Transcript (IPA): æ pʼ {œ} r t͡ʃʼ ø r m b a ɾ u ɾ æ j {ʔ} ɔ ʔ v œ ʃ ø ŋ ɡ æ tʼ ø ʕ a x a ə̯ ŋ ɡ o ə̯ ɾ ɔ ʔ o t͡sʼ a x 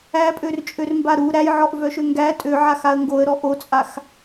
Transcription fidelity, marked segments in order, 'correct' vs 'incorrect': incorrect: ø, incorrect: ʕ

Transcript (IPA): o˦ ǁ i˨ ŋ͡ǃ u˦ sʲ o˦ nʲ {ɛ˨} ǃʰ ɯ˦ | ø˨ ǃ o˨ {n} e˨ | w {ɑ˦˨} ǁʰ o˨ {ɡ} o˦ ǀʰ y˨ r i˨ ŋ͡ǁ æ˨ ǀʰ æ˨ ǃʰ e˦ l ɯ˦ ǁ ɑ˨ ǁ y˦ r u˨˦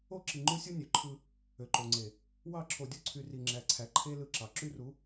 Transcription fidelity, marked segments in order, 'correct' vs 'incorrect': incorrect: ø˨, incorrect: ŋ͡ǀ, correct, incorrect: dʲ

